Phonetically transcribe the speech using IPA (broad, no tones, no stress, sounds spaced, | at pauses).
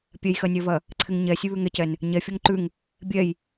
pʲ ɛ j x ɜ nʲ ɜ v ɐ | ǀʰ ɪ ŋ ɲ ɛ sʲ ʉ β ʉ ŋ ɛ c ɛ n | ɲ ɛ fʲ ɔ ŋ ǃ ʉ ŋ | bʲ ɛ j